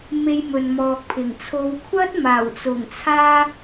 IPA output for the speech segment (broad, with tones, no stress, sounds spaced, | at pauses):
m e˧ j m ɵ˨ n m ɔː˨ k̚ pʰ ɪ˨˩ ŋ t͡sʰ o˨˧ w kʷʰ ɐ˥ t̚ m aː˨˩ w t͡s ʊ˨˩ ŋ t͡sʰ aː˧